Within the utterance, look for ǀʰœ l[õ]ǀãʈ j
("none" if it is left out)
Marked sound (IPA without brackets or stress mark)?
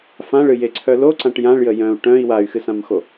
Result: o